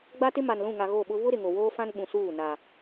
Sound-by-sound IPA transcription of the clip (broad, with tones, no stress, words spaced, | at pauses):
ɡ͡ba˦tɪ˦ ma˨nlũ˦˨ŋa˨ ɣo˦˨ɓʊ˦ βʊ˦ ɾɪ˨ŋo˨woː˦fã˦n ɓũ˨suː˦˨ na˨